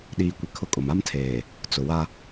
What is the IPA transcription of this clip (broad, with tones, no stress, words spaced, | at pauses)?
ɗiː˨kʷɪ˨ kʰʊ˦kʼʊ˨m a˦mtʰeː˨ | t͡sʊ˨wa˦